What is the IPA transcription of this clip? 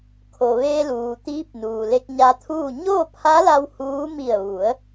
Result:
kʰo˩ʋeː˧ luː˩t̪iː˧˥p̚nuː˩ le˧k̚ɲa˧t̪ʰuː˥˨ ɲoː˥˨pʰa˧˥la˧w huː˧˥ mi˧˩ə̯ʋu˩˧ə̯

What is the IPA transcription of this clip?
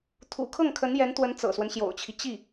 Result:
t̪ʰṵ˨˩kʰɤ˥˩ŋ kʰə˧˥njɛ˧˥nt̪wə˧˥n t͡sɤ̰˨˩swə˦nɕjo̰˨˩ʊ̯t͡ɕʰi˦ t͡ɕi˥˩

